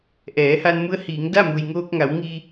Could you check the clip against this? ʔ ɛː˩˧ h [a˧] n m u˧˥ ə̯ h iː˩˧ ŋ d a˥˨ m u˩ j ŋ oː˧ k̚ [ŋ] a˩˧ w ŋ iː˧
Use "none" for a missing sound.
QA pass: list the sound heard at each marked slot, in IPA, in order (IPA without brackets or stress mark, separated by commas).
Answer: a˧, ŋ